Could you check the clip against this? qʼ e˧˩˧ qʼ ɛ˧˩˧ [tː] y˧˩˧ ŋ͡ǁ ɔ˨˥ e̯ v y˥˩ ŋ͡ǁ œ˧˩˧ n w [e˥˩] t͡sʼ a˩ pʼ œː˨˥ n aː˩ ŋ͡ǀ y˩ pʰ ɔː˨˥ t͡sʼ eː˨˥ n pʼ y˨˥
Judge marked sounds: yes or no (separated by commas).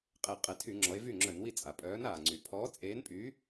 no, no